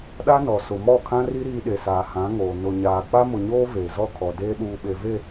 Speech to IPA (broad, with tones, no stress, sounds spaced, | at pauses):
ɗ a˦ n ɔ˨ s ʊ˨ m ɔ˦˨ kʰ ã˦ r i˦ ɾ iː˦ ɗ e˨ s aː˨ h ã˨˦ ŋ oː˨ n ʊ˨ ɲ aː˨ k͡p a˦ m ʊ˨ ɲ oː˦ v eː˨ z ɔ˦˨ kʰ ɔ˨ d eː˦ ɗ uː˨ ɓ e˨ v e˦˨